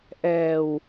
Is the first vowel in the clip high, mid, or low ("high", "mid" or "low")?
mid